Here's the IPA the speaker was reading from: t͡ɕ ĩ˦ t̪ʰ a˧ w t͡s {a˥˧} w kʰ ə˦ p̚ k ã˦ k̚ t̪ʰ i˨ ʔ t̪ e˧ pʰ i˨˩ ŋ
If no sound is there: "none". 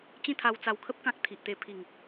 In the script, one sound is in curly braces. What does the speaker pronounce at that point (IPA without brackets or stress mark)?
a˧